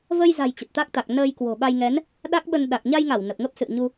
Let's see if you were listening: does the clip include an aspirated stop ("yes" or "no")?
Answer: no